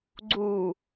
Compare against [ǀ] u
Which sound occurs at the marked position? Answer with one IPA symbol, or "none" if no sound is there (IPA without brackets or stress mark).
ɡ͡ǀ